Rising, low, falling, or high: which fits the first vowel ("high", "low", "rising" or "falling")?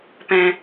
low